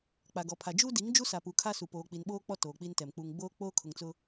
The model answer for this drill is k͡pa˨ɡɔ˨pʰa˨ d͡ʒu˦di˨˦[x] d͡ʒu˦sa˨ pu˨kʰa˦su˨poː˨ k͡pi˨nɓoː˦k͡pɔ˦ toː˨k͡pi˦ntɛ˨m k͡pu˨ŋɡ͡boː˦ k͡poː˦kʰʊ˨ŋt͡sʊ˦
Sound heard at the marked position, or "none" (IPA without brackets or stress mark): ŋ